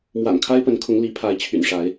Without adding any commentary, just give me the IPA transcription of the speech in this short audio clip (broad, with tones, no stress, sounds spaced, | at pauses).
m w a̰˨˩ n kʰ a˦ ɪ̯ p ə˨˦ n kʰ ʊ˨˦ ŋ l i˨˦ pʰ a˨˦ ɪ̯ t͡ɕʰ y̰˨˩ n ʂ a˨˦ ɪ̯